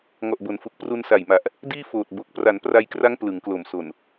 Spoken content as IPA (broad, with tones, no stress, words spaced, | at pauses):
ŋɔ˨˩ʔbo˩˦nfu˨˩k̚ pru˧nsa˨˩jma˨˩ʔ | diː˥˩foː˨˩t̚ bo˨˩k̚ pra˩˦npra˧jkra˦˥ŋ plɯ˩˦ŋ klo˨˩mso˨˩n